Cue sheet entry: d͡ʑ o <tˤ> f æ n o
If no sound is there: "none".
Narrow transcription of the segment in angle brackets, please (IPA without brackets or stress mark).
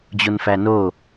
n